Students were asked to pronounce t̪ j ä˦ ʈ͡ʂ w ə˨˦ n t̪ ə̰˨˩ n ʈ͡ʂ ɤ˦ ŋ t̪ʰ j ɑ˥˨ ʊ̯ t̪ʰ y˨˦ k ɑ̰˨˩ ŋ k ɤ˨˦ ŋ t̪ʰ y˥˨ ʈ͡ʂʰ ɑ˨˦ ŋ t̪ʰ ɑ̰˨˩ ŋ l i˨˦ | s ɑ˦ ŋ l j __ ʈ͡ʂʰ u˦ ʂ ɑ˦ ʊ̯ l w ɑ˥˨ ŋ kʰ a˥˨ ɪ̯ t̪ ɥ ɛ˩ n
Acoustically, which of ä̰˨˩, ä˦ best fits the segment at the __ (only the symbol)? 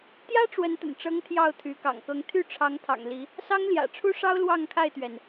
ä̰˨˩